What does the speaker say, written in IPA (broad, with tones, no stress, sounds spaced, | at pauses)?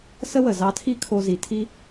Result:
s ə˥ w ə˩ z ɑ˧ tʰ i˥ kʰ o˧ z i˩ tʰ i˥